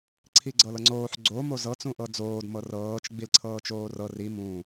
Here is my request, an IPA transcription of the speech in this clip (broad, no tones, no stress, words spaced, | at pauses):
ǀʰiɡ͡ǀɤlɤŋ͡ǀoːħ ɡ͡ǀo mozɤ t͡sũʔɤd͡zoːd mɤrɤːt͡ʃ ɡ͡bilǀʰɤːt͡ʃoːrɤ ri mũː